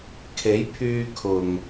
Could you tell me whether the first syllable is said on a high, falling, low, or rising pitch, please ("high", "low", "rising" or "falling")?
rising